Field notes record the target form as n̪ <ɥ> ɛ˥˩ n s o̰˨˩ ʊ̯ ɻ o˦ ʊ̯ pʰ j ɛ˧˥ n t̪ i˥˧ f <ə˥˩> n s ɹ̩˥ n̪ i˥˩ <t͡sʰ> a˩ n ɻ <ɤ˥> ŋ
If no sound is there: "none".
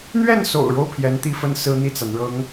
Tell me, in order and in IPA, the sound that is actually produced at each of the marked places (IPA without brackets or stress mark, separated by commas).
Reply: ɥ, ə˥˩, t͡s, ɤ˧˥